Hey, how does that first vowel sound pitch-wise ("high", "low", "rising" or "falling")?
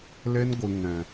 high